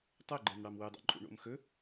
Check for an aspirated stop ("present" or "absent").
absent